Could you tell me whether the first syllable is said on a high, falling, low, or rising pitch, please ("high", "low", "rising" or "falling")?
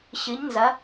rising